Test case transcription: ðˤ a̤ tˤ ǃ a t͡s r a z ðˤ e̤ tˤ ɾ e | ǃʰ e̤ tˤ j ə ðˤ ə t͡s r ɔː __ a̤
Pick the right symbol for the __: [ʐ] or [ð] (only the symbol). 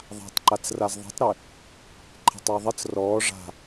ʐ